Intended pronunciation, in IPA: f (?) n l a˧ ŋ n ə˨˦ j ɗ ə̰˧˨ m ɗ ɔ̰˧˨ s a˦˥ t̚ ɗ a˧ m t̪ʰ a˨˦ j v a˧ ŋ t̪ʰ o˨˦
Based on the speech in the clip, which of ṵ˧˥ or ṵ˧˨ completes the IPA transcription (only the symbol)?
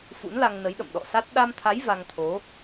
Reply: ṵ˧˥